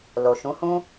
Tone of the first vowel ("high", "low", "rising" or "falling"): low